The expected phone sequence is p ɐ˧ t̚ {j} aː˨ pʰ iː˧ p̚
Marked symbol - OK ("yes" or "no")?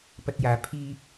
yes